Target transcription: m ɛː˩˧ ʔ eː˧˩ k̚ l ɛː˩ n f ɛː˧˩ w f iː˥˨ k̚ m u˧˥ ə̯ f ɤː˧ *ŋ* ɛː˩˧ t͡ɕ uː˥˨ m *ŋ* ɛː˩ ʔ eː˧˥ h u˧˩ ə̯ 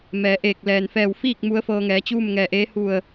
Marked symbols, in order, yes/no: yes, yes

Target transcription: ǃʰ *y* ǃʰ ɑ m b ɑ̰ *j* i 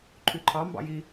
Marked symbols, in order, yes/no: yes, yes

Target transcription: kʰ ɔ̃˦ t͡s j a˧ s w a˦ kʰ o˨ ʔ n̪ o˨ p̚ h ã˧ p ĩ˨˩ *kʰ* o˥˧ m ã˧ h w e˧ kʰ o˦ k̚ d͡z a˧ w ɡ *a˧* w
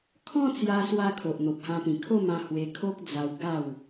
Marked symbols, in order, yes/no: yes, no

